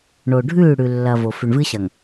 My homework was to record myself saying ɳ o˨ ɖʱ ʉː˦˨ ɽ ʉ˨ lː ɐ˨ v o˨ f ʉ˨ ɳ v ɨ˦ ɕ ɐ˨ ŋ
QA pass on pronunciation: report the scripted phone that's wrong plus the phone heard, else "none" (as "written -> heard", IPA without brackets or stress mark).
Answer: none